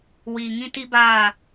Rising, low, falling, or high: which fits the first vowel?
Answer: low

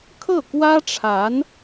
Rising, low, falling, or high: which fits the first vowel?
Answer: falling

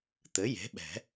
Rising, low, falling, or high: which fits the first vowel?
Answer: rising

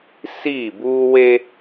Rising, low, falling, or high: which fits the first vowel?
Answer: falling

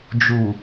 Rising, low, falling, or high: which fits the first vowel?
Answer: low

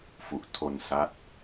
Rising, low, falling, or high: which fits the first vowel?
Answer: low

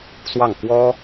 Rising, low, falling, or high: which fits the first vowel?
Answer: falling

